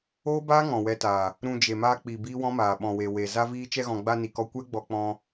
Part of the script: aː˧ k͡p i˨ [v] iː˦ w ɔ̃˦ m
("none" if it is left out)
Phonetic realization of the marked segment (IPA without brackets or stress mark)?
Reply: b